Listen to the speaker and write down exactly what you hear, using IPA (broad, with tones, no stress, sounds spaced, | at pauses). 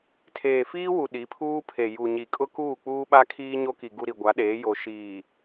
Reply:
tʰ eː˨ f iː˦ w u˨ ɗ i˨˦ pʰ uː˦ pʰ e˨ j u˨ ɲ i˨ kʼ ʊ˦ k uː˦˨ k͡p uː˦ ɓ a˦ kʰ iː˦ ɲ o˦ k i˨ ɡ u˨ ɾ i˨ ɡʷ a˨˦ ɗ eː˨˦ j o˨ ʃ iː˨